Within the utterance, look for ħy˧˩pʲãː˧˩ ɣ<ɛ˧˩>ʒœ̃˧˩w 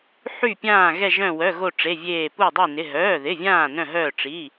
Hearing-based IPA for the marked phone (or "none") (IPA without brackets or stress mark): ɛ˧˩